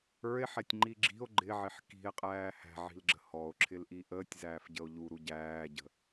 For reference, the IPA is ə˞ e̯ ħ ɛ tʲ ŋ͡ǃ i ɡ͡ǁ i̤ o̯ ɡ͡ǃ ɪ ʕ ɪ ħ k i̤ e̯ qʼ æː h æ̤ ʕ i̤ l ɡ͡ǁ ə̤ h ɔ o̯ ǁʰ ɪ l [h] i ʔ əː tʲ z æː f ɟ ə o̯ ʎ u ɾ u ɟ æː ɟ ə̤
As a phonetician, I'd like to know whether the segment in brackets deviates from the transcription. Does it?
yes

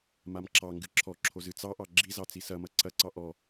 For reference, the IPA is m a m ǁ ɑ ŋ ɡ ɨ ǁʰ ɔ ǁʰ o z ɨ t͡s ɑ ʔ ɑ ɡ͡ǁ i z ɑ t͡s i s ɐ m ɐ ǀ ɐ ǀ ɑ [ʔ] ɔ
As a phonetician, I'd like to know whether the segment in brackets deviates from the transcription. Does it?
no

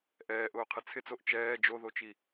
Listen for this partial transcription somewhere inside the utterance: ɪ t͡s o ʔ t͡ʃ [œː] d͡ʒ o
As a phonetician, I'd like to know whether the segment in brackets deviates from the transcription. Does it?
yes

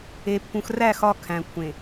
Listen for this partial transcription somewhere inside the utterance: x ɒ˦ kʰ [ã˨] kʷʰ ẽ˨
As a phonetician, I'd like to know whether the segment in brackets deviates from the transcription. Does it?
yes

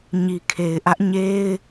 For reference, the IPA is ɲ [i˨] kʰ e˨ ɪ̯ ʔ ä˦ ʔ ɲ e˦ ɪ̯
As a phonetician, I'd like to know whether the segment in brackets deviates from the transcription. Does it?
no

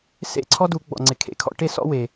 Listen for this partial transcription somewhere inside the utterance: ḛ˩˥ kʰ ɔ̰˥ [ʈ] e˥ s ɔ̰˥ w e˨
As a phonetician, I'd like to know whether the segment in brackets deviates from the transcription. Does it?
no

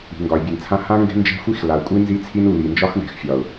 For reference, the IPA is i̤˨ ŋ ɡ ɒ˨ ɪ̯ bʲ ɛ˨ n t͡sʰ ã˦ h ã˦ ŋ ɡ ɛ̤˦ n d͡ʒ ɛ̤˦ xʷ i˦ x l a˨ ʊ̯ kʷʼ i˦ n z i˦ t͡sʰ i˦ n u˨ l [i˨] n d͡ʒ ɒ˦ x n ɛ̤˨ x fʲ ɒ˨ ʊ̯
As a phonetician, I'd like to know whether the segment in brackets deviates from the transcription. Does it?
no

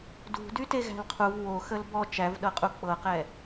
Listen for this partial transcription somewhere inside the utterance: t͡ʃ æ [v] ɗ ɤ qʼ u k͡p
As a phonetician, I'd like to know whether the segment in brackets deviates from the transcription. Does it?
no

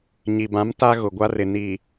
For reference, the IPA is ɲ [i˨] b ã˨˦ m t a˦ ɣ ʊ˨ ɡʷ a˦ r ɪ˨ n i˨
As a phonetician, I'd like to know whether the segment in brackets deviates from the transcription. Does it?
no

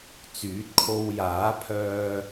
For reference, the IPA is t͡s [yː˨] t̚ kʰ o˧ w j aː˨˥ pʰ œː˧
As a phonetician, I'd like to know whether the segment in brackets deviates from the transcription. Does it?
yes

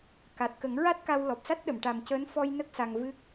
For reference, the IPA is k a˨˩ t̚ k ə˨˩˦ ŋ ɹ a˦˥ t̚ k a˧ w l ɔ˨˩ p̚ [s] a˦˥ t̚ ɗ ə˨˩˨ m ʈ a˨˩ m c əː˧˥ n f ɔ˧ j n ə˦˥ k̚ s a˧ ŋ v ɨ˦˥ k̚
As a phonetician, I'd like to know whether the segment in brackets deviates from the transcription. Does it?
no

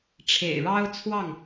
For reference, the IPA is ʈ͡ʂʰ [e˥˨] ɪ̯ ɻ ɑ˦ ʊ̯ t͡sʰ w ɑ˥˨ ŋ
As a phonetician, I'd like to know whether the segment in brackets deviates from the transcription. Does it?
yes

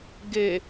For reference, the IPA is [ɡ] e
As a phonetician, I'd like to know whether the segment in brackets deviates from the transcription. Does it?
no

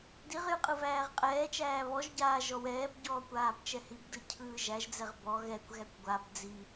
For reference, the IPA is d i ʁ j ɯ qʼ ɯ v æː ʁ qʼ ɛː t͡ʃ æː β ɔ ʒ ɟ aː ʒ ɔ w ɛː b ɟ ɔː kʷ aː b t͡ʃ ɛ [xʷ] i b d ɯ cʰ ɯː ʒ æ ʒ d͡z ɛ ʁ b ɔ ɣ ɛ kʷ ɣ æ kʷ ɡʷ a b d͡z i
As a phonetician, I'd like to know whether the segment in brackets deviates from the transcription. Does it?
yes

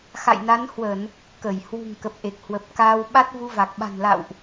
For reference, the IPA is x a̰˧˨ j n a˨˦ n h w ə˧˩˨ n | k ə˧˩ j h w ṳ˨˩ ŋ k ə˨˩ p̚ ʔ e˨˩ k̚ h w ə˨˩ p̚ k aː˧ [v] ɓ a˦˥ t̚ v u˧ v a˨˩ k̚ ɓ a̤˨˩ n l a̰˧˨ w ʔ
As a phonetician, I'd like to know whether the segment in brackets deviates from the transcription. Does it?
yes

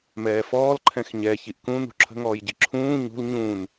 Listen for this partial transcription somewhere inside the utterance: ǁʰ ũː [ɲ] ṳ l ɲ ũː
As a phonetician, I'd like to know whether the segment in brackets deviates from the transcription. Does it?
no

